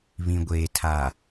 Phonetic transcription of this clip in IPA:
βĩ˨ɡʷeː˨ tʰa˨

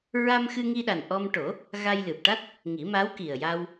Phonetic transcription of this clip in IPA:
ɹa˧mxɨ˧ŋi˧ɗa˨˩n ʔɔ˧mʈo˨˩˦ | ɣa˧jlɨ˨˩p̚ ʈa˦˥t̚ | ŋi˨˩˦ma˧˥w ki˨˩ə̯ja˧w

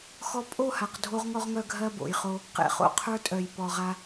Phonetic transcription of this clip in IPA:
xɔ˦ pʼo˦˨ha˨q dʱo˦ʁŋɔ˦ʁŋœ˦ ɡʱɜ˦bo̰˨jχo˦ | qḛ˨χo̰˨qʰə˞˦tʼœ˨j pɔ˨ʁa˦

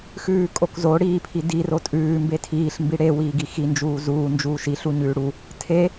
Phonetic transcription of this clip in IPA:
xʉːkʼokzo ɽiːpʰidiro tʼʉː mbetʰiːɬmbi ɽewiː ɡixi nd͡ʒuːzuː nd͡ʒuːʃi ɬuɲʉːɽu | tʰe

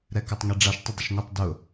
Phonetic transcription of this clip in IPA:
ɾɛkɛtˤŋiɖ͡ʐaʃ tˤɪdˤɪʃŋʷɪtˤ dʊ

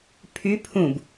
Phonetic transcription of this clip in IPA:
pʰy pʰũb

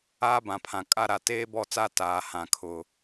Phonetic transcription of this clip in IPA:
aː˦bã˨pʰã˨kʼa˦ ɾa˨teː˦bɔ˦˨t͡sa˦ taː˨hã˨ kʰʊ˨

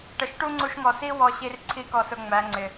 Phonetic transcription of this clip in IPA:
ʈə˨ʃʈu˦ŋ͡ǀu˧ʃŋɔ˨ si˦wɔ˧ɕi˧rǀʰi˧ kɔ˨sʊ˨ ŋ͡mæ˨˦ŋ͡ǀɪ˨

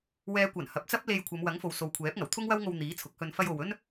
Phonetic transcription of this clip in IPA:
wɛː˨˧kʷɐ˨˩n hɐ˨p̚t͡sɐ˥p̚le˧jkʷʰɐ˨˧m wɐ˨˥ŋfo˨wso˨wkʷʰɛː˨˥p̚ ŋɐ˨˩wt̪ʰʊ˥ŋwɐ˥wŋo˧w n̪iː˨˥t͡sʰʊ˨˥k̚hɵ˧n fɐ˧jo˨w ɵ˥n

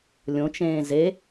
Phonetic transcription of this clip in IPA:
lʲõt͡ʃẽː ze

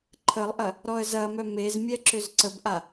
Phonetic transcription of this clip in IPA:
ǃʰəlˠʔɐ | ɾɔə̯zɐmœ mezmʲɛ ǁʏzǀəbʔa

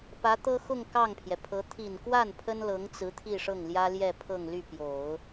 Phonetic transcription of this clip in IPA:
pä˧˥t̪ɤ˥ xʊ˥˧ŋ kɑ˥˩ŋpʰjɛ˩pʰɤ˧˥ t̪ʰi˨˩nkwa˥˩n pʰə˥nlɤ˧˥ŋt͡sɹ̩˧˥ t̪ʰi˥˧ʂɤ˥˩ŋljä˥ljɛ˥˧ pʰɤ˥˧ŋly˥˩pjo˨˩˦ʊ̯

